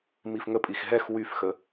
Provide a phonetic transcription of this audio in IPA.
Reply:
m i f ŋ ə pʼ i x ɦ ɛ x w y f x ə

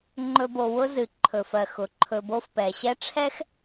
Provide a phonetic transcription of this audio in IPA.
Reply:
ŋ͡ǃ ɵ˨ b o˩ w ʊ˦ z ɨ˩ ǃʰ ɵ˩ f ɜ˩ x ʊ˩ ǃʰ ɵ˨ b o˥ f p ɛ˩ ɕ ɛ˦ ʈ͡ʂʰ ɛ˥ x

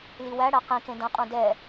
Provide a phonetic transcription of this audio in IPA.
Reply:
l i w æ ɽ æ q ĩ k ẽ d ɐ̃ qʼ ũ d ɛ

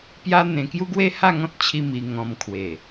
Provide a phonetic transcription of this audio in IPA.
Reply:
p j a˦ n̪ ẽ˧ k j u˦ ɡ w e˦ h a˥˧ ŋ ɔ̃˦ t̚ t͡ɕʰ i˧ m i˧ ŋ ɔ̃˧ m kʰ w e˨˩

